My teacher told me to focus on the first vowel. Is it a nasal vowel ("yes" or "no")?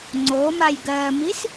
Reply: no